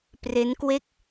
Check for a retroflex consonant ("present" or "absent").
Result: absent